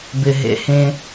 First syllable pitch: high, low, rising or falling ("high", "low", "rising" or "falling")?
low